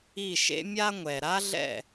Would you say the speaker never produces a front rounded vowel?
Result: yes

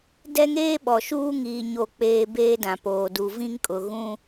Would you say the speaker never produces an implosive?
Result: no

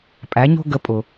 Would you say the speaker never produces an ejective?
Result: no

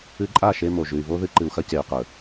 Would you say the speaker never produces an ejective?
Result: no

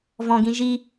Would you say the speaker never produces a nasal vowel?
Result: no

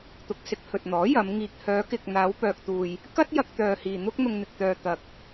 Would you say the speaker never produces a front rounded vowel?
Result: no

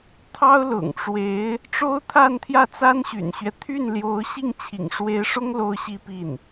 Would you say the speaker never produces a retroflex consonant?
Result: no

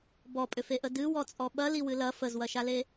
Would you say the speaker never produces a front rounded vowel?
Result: no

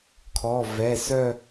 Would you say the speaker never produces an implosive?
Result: yes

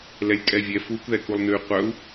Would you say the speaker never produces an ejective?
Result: no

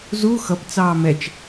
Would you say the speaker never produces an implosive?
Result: yes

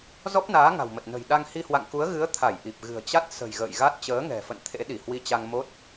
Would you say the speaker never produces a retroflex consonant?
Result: yes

